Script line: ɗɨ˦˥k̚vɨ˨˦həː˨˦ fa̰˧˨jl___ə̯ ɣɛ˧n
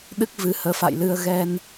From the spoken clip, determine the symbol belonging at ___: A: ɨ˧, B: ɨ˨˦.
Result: A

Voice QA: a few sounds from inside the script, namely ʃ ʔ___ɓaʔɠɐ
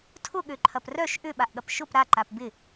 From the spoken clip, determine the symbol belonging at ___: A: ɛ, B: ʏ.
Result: B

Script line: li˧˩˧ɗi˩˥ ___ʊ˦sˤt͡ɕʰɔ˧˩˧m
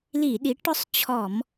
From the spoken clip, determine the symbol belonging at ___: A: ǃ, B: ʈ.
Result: B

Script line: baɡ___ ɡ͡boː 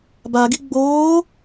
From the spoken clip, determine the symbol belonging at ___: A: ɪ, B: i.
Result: B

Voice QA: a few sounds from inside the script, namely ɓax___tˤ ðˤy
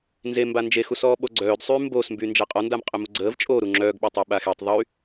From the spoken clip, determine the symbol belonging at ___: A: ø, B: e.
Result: B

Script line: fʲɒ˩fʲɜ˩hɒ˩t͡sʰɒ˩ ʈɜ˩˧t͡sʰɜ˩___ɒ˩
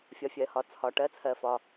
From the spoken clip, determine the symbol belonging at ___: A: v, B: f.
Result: B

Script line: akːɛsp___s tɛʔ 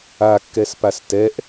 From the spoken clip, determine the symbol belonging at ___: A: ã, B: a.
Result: B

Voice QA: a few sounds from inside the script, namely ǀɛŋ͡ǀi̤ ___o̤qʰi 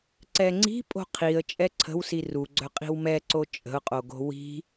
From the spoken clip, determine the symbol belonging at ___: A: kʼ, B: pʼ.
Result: B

